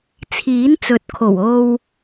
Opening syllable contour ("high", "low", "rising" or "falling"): rising